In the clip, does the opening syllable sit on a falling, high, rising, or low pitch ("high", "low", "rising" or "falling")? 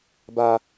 high